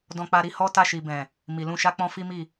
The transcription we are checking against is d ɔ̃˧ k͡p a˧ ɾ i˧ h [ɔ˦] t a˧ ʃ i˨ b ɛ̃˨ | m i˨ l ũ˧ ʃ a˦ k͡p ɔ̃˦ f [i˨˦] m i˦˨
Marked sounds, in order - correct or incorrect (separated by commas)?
correct, incorrect